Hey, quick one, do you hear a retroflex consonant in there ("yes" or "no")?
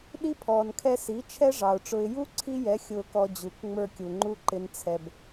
yes